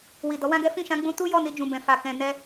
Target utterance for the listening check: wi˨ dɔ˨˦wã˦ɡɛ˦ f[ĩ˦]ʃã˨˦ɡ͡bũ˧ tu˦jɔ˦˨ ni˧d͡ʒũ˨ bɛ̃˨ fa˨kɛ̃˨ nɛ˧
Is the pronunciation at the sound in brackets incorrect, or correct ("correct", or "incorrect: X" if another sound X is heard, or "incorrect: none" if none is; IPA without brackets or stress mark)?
incorrect: ĩ˦˨